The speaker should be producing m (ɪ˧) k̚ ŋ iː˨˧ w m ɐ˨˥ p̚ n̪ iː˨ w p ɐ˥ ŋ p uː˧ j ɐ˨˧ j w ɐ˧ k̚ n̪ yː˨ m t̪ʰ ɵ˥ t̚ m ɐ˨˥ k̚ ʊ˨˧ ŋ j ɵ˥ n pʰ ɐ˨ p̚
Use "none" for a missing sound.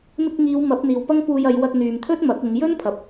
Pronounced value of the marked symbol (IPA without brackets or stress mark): ɪ˧